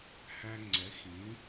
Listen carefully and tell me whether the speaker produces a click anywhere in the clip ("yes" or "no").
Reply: yes